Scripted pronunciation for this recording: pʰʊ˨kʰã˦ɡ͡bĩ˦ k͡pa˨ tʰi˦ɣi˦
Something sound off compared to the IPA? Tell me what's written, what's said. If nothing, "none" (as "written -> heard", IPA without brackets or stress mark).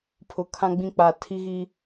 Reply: none